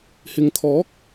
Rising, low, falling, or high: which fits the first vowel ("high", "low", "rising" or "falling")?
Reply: low